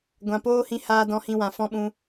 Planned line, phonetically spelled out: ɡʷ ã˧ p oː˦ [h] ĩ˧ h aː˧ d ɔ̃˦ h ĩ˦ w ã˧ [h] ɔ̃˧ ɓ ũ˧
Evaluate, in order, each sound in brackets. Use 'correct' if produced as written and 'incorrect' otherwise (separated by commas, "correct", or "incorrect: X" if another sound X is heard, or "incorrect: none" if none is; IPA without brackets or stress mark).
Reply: correct, incorrect: f